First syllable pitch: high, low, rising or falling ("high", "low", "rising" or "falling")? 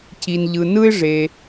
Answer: low